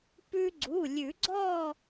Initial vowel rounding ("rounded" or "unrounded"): rounded